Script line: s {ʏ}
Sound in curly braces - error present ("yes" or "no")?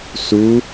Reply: yes